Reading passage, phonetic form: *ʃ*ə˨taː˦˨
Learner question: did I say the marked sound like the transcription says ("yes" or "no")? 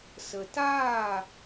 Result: no